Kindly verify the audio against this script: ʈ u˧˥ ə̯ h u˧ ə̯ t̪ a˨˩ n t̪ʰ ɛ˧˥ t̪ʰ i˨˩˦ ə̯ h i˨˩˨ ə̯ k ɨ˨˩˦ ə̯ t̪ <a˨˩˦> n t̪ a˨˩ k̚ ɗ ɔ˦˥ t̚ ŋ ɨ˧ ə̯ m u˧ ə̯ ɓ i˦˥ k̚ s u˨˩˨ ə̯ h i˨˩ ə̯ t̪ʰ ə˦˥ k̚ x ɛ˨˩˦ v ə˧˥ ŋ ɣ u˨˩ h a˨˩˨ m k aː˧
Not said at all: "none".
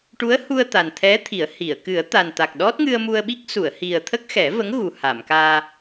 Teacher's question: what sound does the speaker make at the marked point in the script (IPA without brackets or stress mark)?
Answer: a˨˩